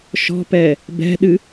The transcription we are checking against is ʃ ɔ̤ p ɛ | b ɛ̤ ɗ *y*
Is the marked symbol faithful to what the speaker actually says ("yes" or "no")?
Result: no